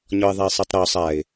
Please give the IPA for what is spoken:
ɲ ɔ ɪ̯ ðˤ a ɪ̯ sˤ ɛ tˤ ɾ ɔ sˤ a ɪ̯

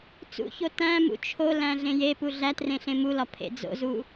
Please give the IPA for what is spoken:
t͡s ṵ ç o t æ̃ m ṵ t͡ʃʰ o l æ̃ ɮ ẽ j e p u ɮ æ t r ẽ ɬ ẽ m u l ɒ pʰ ḛ d͡z o̰ z u

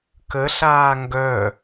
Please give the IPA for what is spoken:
k ə ɬ aː ŋ ɡ œ

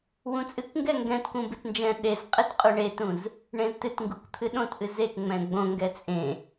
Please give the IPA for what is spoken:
w ũ t͡sʼ ɨ k ŋ ɡ ɛ ŋ ɡ ɛ̃ t k ũ b ɨ t n d͡ʒ ɛ̃ ɗ e z qʼ e t qʼ u ɳ e t ũ z | ɳ ẽ z t ɨ t ŋ ɡ u k t̪ʰ ɨ ɗ õ t ʔ ɨ z e k ŋ͡m ɛ̃ ɡ͡b õ ŋ ɡ ɛ t͡sʼ ẽ

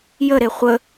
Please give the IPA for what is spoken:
j ə ɾ e χʷ ə

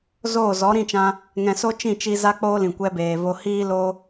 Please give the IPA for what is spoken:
z oː˦˨ z ɔ˨˦ ɾ ĩ˦˨ t͡ʃ ã˧ | ŋ ɛ̃˨ s o˦ t͡ʃ ĩ˦˨ t͡ʃ i˧ z a˦ k͡p oː˦ l ĩ˨ kʷ ɛ˧ b eː˨ v o˧ h iː˦ l o˦

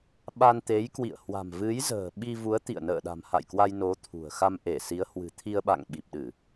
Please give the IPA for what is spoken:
ɓ a˧ n t̪ e˨˦ j k w ḭ˧˨ ə̯ h w a̤˨˩ m v ɨ˨˦ j z ə̤ː˨˩ ɓ i˧ v u˨˦ ə̯ t̪ ḭ˧˨ ə̯ n ə̰ː˧˨ ɗ a̤˨˩ m h a̰˧˨ j k w a˧ j n o˨˦ t̪ʰ ṳ˨˩ ə̯ x a˧ m ʔ e˧˩ s i˨˦ ə̯ h w ɨ̤˨˩ t̪ʰ i˧ ə̯ ɓ a̰˧˨ ŋ ɓ i˨˩ p̚ ɗ ɨ˧˩˨

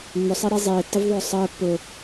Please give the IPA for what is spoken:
mː ʊ sˤ e ɾ i zˤ eː tː ə v ðˤ ʊː sˤ əː pː ʊ

